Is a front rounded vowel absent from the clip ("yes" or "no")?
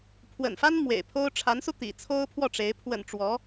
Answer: yes